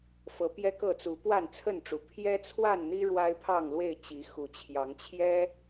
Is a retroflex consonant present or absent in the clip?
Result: present